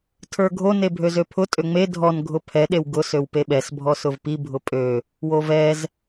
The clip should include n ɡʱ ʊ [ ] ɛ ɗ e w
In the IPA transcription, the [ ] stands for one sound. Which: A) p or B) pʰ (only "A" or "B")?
B